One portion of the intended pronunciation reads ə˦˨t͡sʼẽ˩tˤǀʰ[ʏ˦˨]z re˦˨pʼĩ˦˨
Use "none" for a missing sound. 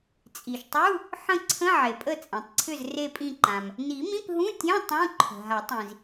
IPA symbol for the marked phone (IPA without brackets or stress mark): ʏ˦˨